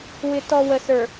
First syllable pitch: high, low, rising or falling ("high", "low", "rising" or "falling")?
low